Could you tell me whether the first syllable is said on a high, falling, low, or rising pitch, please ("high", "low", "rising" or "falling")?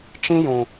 high